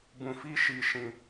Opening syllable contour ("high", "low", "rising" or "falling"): low